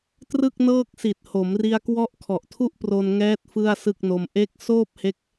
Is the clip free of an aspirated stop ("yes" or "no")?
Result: no